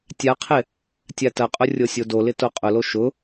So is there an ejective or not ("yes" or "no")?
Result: yes